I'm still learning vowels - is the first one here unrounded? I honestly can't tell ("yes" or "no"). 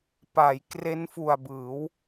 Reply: yes